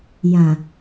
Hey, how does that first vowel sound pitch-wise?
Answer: low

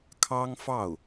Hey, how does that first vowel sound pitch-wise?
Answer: high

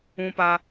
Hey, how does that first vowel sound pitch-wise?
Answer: high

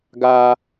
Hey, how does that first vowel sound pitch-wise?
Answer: low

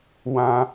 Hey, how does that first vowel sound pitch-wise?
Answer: high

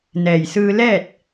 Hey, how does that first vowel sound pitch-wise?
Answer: low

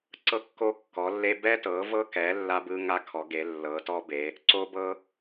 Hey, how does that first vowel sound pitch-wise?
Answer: high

